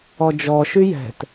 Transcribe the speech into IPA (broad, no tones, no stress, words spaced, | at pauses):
ɔd͡ʒɔ ʃyjɛ̤t